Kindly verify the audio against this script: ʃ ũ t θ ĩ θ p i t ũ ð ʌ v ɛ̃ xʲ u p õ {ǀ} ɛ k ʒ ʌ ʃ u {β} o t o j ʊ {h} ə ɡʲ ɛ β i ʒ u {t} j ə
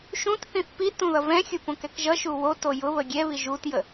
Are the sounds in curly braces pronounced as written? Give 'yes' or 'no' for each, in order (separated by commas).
no, no, no, yes